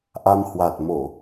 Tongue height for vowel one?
low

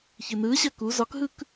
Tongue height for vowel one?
high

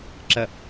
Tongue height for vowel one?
low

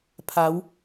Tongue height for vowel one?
low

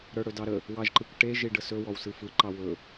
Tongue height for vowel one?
mid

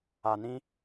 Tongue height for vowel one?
low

